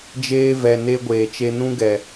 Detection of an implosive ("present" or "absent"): absent